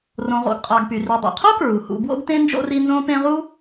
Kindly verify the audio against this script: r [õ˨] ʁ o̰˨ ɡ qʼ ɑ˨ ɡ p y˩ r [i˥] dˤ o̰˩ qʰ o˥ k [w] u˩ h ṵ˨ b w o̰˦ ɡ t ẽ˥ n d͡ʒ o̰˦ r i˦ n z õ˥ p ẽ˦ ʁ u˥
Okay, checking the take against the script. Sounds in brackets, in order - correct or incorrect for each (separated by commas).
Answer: correct, incorrect, incorrect